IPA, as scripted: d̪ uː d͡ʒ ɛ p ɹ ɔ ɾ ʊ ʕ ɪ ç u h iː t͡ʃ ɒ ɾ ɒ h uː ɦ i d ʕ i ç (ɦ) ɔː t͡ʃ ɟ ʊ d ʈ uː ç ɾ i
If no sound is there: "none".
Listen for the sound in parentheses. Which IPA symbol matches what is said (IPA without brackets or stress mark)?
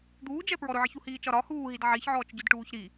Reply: ʕ